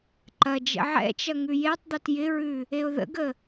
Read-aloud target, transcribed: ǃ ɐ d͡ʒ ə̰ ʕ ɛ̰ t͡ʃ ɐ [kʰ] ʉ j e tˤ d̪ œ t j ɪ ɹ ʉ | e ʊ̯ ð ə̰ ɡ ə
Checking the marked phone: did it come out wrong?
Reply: yes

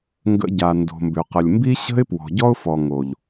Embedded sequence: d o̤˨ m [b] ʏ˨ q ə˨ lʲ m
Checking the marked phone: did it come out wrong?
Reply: no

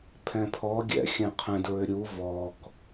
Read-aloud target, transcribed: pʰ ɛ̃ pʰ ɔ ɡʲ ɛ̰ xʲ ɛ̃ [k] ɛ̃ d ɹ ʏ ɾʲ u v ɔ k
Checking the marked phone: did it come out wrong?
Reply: yes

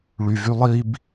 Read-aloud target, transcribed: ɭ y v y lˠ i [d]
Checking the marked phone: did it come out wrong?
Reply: yes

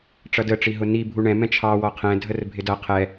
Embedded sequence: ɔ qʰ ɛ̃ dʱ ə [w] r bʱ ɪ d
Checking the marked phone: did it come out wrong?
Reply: yes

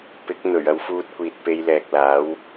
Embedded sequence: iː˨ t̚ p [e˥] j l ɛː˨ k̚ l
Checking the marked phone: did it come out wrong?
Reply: yes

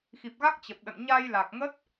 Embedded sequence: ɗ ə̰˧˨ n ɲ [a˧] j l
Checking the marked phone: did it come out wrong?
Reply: no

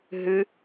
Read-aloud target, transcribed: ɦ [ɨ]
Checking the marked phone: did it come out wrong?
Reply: no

